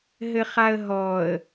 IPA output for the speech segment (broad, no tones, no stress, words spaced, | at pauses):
ɦɘχaə̯ɦɔə̯